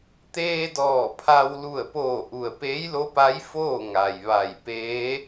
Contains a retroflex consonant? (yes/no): no